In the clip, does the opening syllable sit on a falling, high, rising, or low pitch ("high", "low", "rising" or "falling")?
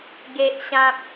high